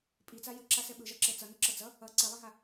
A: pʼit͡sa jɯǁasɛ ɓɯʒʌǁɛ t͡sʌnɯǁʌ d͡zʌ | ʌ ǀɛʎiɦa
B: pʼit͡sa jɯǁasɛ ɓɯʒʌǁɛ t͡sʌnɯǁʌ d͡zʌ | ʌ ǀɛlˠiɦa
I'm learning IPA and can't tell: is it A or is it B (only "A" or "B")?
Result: B